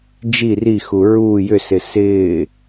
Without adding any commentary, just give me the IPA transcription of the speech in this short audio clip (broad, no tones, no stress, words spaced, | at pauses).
d͡ʒi rixu ɹuː jʏsɪ sɪː